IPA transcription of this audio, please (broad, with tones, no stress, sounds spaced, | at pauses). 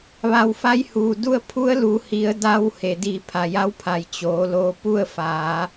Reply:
ʋ a˧˩ w f a˧˥ j h uː˩ d u˥˨ ə̯ pʰ u˧˥ ə̯ l uː˩˧ h i˩˧ ə̯ d a˧ w h e˩ d iː˧˩ pʰ a˩ j a˧˥ w pʰ a˩ j t͡ɕ oː˩˧ l oː˧ p u˥˨ ə̯ f aː˩˧